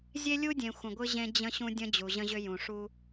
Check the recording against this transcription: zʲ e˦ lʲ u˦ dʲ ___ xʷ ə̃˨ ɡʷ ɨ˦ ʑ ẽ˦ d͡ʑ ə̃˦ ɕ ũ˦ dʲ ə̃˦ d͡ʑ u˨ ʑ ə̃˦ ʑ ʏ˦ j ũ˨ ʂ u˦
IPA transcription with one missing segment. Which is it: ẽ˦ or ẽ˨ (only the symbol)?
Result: ẽ˨